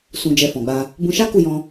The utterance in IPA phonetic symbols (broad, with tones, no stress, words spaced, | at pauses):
sũ˧d͡ʒɛ˧fɔ̃˨ɡ͡ba˧ | bũ˧ʃa˦ ku˦˨jɔ̃˧